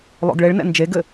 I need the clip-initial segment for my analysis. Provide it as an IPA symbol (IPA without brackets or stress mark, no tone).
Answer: lˠ